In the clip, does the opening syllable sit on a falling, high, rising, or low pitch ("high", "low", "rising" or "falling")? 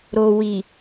low